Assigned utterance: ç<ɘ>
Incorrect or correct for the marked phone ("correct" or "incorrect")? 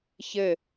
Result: correct